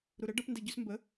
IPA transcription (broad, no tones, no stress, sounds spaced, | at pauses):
ɾ u ɾ ə ɖ ʌ p n d ɛ ɟ ʉ s m b ə